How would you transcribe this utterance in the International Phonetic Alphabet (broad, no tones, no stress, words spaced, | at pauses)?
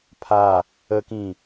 pʰa | əkĩ